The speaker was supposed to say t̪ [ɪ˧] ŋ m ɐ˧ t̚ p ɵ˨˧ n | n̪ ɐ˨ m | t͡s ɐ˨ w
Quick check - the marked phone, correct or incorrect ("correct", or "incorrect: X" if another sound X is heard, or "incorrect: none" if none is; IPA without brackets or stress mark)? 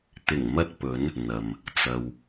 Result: incorrect: ɪ˨˩